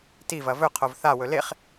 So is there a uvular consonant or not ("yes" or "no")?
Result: yes